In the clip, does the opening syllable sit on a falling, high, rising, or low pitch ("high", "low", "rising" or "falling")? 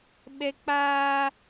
high